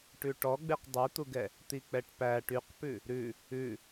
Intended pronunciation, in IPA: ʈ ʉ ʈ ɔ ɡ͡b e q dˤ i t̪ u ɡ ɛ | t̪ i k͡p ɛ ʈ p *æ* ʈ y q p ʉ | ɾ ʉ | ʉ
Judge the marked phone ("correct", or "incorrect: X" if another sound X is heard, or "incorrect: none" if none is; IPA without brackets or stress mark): correct